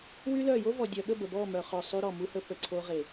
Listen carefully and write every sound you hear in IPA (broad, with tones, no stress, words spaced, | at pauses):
wy˦lœ˦˨ jo˦vɔ˨dʲœ˨ɠə˦˨ bə˨bɔ˦˨mœ˨χø˨ sˤy˧ɾɔ˨ mu˧hə˧ pə˨ǀʰo˧ ʁe˨